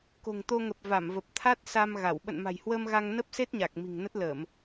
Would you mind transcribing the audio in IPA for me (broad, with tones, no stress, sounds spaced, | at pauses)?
k o̤˨˩ ŋ t̪ o˧ ŋ ə˨˩ p̚ v a˧˩ m v ə˨˩ p̚ t̪ʰ a˦˥ t̚ s a˧ m ɣ a˧˩ w ɓ ə̰˧˨ n m a̤˨˩ j h w əː˧ m ɣ a˧ ŋ n ə˦˥ p̚ s e˦˥ t̚ ɲ a˨˩ k̚ m i̤˨˩ ŋ n ə˦˥ t̚ l əː˧˩˨ m